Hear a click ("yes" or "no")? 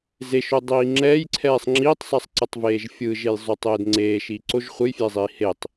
yes